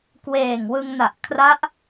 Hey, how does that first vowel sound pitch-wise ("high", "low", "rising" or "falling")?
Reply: low